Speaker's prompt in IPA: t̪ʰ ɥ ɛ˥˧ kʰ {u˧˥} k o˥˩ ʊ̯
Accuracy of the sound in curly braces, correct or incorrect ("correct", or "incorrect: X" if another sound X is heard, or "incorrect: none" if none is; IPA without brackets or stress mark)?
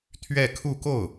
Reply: incorrect: u˥˧